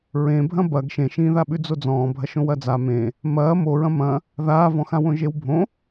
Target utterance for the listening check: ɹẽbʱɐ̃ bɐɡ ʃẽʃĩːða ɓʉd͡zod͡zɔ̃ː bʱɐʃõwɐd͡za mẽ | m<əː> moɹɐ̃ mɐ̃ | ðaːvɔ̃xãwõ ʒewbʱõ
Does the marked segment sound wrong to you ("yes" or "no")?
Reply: yes